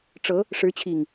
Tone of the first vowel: rising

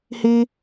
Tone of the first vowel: high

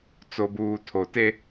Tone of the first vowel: low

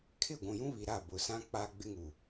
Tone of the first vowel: falling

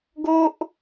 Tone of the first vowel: high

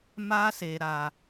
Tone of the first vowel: high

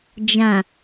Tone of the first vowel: low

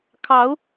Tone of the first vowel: rising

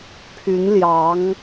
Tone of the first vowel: rising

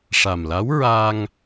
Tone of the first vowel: low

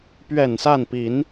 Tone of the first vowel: low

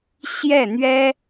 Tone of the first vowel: falling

